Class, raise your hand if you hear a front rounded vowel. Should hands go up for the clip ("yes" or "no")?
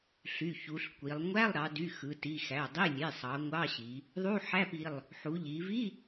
yes